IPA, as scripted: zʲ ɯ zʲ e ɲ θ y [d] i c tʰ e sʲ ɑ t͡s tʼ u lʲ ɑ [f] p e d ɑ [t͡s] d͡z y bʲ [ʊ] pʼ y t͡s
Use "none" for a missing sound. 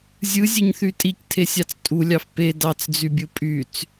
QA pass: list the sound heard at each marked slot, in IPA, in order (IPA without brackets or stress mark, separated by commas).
tʼ, f, t͡s, ɯ